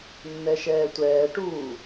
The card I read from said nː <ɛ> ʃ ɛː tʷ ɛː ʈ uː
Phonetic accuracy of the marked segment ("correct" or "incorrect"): correct